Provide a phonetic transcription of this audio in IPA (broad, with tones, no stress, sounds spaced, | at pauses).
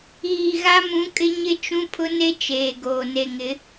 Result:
iː˨ ɣ a˦ m ũ˨˦ kʼ ɪ˦ ɲ ɪ˦ t͡ʃ ũ˦ pʰ ʊ˦ n e˦ t͡ʃ eː˨ ɡ oː˨ n e˨ ŋ ɪ˨˦